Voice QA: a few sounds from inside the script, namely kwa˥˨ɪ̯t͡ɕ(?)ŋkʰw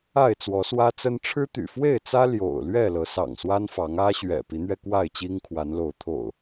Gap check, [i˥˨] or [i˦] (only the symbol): i˦